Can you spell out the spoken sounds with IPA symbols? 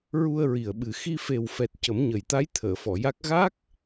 ɹ u˧ ə̯ ɹ i˨˩ ə̯ ɓ ɨ˨˩ x i˧ f e˨˩ w f ɛ˨˩ t̚ c ə˨˩˦ m ɲ ə˨˩ j t̪ a˧˥ j t̪ʰ əː˨˩˨ f ɔ˨˩˨ j a˦˥ k̚ ɣ a˦˥ k̚

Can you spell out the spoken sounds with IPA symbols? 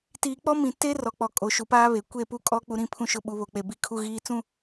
t iː˨ k͡p ɔ˦ m ĩ˨ t e˦ r ɔ˨ k͡p ɔ˨ kʼ o˨ ʃ u˨ p aː˦ β e˨ kʷ e˦˨ p u˦ kʼ ɔ˦ k͡p u˦ ɾ ĩ˦ pʰ ũ˦ ʃ ʊ˦ ɓ u˨ β o˨ k͡p e˨ b i˦˨ kʰ u˦ ɣ iː˦ t͡s ũ˦

